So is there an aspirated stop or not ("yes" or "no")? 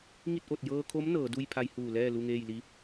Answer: yes